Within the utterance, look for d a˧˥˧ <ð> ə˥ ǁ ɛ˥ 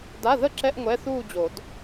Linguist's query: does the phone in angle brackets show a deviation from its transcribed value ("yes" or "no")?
no